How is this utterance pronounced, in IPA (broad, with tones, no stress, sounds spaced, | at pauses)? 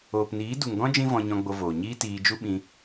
oː˨ p n iː˨˦ d u˨ ŋ ɡ ɔ̃˦ d͡ʒ ĩ˦ v ɔ̃˧ ɲ ɔ̃˧ ɡ͡b o˧ v oː˨ ɲ iː˦ t iː˧ d͡ʒ u˦ ɓ ĩ˧